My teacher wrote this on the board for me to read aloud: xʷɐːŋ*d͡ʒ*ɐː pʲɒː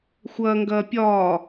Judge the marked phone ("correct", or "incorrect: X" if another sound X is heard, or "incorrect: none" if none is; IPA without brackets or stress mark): incorrect: ɡ